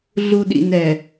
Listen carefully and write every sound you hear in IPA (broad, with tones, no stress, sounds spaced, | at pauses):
ɮ u˨ ɗ ḭ˨ n ɛ˨